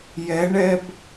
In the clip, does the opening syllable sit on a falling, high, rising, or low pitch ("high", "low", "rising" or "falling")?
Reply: rising